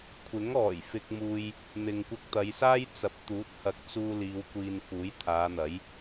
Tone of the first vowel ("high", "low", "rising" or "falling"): rising